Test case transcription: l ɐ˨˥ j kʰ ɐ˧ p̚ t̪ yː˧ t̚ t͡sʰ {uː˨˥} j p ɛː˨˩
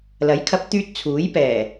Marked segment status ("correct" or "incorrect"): correct